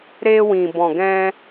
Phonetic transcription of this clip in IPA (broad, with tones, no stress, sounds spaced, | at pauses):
ɾ e˧ w ĩ˨ b ɔ̃˨ ɡ ɛ̃˧